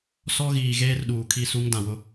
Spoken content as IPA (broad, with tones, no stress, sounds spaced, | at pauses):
s ɔ˦ ɣ iː˨ ɣ eː˦ r ɗ uː˨ kʰ i˦˨ s u˦ ŋ d ã˨ w ʊ˦